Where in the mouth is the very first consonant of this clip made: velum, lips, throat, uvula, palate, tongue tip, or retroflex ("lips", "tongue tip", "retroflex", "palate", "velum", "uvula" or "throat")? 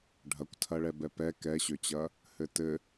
retroflex